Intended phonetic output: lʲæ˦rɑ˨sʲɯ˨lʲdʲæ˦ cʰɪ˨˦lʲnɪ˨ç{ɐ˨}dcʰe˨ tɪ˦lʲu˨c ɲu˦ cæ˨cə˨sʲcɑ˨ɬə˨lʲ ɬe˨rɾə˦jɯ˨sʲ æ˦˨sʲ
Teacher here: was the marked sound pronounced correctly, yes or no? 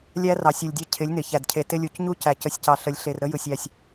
no